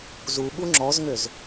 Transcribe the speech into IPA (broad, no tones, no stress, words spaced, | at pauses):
zu ɠuŋ͡ǁɔzŋøz